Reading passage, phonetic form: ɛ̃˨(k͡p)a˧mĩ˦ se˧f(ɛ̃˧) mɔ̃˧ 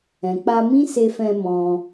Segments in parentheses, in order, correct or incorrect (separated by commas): correct, correct